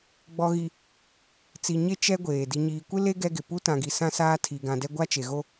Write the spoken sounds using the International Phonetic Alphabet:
ɡ͡b ɔ˨ ɣ i˨ | t͡s i˨ ɲ e˦ t͡ʃ ɛ˦ ɡʷ eː˨ d i˨ ɲ iː˨ kʷ ɪ˦ l e˦ ɡ ɛ˦ ɡ ɪ˨ p u˦ t ã˨ ɡ i˨ s ã˦ s aː˦ tʰ i˨ ɡ ã˨ d ɛ˦ ɡʷ a˦ t͡ʃ e˨ ɣ o˦

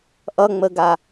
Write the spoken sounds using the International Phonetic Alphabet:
ʔ ʌ ŋ͡m ə ɡ a

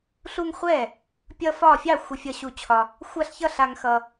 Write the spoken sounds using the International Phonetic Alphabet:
ɬ u˦ ŋ χʷ ɛ˥˨ | pʲ ʌ˦ f ɒ˥˨ fʲ ɑ˥˨ xʷ ə˦ fʲ ʌ˦ ɕ u˦ t͡ɕʰ ɒ˦ | xʷ a˥˨ ɬ ç ʌ˥˨ ɬ a˦ ŋ x ʌ˦

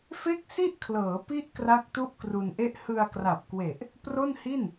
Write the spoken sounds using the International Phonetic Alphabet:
f e˥˩ k̚ s i˥˩ ʔ kʰ l ɤː˩˦ p i˦˥ ʔ k r a˥˩ k̚ t u˥˩ ʔ k r u˧ n ʔ e˥˩ ʔ h ɯ˧ a̯ k r a˨˩ p̚ k w e˨˩ ʔ | p r o˥˩ n h i˥˩ n

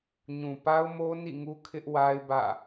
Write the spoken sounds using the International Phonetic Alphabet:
ɲ ũ˨ p a˦ ʊ̯ m o˦ n ḭ˦˨ ŋ u˦ kʰ ɪ˦ ʔ w a˦ ɪ̯ b ä̰˦˨

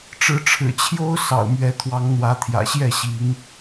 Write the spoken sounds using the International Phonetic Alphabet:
ʈ͡ʂ ɻ̩˨˦ ʈ͡ʂʰ ɻ̩˨˩ t͡ɕʰ j o˦ ʊ̯ s ɑ̰˨˩ ʊ̯ m ɥ ɛ˨˦ t̪ʰ w ɑ˨˦ ŋ n̪ w ä˨˦ t̪ʰ j ä̰˨˩ ɕ j ɛ˥˨ ɕ i˨˦ ŋ

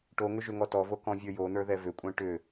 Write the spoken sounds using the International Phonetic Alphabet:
ʈ o ŋ ʏ ʒ ʏ ŋ ɔ t ɔ v o k ɔ̃ vʲ ə˞ j o n̪ ə˞ ð ɛ v ʏ kʷʼ ɛ̃ ʈ ʏ

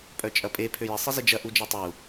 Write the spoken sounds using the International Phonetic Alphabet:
pʼ œ t͡ʃʼ ɐ pʼ e pʰ ø j ɪ sˤ ɪ z ɪ d͡ʒ ɐ ʔ u d͡ʒ e tˤ u

